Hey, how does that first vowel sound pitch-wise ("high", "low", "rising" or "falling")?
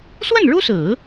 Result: falling